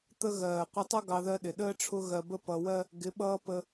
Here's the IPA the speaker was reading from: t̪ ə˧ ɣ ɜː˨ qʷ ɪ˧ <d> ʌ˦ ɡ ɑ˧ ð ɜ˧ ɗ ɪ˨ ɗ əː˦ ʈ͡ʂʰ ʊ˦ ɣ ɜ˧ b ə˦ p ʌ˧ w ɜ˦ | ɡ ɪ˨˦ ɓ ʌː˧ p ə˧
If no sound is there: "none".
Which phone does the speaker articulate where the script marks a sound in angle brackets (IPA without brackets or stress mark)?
tˤ